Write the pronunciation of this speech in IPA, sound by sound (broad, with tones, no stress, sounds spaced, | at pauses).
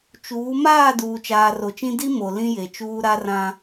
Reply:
t͡ʃ uː˨˦ m aː˦˨ d uː˨ t͡ʃ aː˨ r o˨ t͡ʃ ĩ˦ d i˦ m o˨ l ĩ˦ j e˨ t͡ʃ uː˦ ɾ a˦ r ã˦